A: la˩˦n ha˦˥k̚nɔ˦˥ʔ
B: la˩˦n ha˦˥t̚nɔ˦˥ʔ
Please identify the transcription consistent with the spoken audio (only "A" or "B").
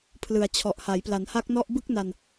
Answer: A